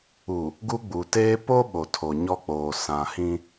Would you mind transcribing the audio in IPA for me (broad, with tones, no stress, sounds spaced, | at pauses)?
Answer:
u˨ | ɡ u˦ ɡ͡b u˨ t eː˦ p o˦ ɓ o˨ tʰ o˨ ɲ ɔ˦ k͡p oː˨ s ã˨ h ĩ˦